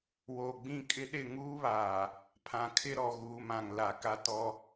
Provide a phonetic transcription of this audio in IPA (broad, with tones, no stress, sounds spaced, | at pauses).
w oː˨ ɡ͡b ĩ˦˨ kʼ ɪ˦ ɗ ɪ˦˨ ŋ uː˦ β aː˨ | pʰ ã˨ kʰ ɪ˦ ɾ ɔ˨ ɣ uː˨ m ã˨ ŋ l a˨ k a˦ t ɔ˦